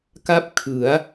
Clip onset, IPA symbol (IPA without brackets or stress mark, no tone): k